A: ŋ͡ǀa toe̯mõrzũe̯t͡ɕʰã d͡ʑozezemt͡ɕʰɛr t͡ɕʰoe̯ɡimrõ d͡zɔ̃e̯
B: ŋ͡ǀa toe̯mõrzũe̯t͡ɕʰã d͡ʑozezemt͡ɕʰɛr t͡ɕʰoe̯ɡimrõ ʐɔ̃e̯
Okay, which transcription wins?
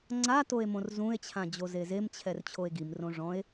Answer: B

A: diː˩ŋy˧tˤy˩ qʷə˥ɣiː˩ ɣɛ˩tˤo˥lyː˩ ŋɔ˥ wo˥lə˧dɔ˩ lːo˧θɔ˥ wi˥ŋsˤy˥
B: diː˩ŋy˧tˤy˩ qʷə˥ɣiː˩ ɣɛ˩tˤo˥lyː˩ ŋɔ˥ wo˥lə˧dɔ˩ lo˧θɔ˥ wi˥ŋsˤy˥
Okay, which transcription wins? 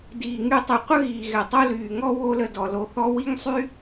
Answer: B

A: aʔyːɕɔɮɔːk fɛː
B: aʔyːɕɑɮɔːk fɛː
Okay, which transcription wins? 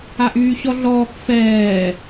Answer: A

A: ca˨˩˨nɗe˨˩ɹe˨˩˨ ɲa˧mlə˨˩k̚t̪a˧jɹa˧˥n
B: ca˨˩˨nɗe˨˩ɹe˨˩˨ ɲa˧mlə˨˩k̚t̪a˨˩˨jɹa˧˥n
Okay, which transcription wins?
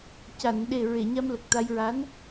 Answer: A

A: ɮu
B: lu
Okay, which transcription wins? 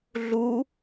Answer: A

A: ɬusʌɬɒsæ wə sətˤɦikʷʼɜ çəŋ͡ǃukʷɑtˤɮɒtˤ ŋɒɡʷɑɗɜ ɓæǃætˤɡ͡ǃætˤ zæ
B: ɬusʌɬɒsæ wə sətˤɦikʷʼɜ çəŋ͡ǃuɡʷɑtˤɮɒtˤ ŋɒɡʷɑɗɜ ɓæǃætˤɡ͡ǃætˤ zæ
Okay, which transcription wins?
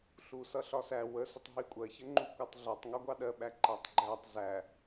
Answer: A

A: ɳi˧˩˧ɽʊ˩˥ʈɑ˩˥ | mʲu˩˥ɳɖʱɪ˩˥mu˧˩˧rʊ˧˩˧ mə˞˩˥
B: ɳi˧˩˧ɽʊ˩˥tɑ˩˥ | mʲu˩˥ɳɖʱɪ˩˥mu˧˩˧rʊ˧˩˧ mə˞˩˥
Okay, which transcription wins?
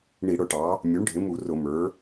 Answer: A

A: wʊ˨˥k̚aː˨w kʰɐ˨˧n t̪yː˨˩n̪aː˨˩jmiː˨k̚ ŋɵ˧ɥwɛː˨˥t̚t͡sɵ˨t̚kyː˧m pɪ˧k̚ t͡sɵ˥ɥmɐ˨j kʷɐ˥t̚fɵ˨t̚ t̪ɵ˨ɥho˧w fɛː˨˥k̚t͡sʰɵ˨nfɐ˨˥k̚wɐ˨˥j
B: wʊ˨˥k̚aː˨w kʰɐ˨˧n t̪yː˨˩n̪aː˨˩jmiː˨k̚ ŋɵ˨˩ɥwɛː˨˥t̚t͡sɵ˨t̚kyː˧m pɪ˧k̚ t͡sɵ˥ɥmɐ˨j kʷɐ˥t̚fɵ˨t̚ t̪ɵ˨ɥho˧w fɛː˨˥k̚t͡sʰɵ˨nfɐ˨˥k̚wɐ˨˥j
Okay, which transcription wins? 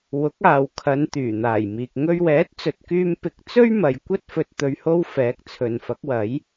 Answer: A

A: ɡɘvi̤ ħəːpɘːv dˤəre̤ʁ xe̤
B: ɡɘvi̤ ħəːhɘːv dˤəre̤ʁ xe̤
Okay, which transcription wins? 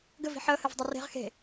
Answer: B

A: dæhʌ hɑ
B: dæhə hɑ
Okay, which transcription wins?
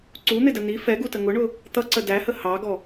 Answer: B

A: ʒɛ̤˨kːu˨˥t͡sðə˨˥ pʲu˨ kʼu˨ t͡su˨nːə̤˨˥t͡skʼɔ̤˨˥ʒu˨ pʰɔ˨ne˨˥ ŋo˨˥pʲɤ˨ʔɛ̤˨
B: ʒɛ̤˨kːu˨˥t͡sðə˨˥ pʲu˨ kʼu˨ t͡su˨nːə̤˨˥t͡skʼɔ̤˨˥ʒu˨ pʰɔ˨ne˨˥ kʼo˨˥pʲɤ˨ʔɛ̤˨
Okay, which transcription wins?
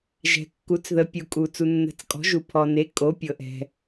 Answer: B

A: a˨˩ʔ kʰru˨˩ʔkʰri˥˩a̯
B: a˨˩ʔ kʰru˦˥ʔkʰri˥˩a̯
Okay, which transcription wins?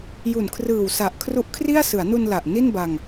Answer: B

